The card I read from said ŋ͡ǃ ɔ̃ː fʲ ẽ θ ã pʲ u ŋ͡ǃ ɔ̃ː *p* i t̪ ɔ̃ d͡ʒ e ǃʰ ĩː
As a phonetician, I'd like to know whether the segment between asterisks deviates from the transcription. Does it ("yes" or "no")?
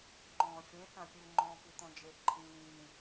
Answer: no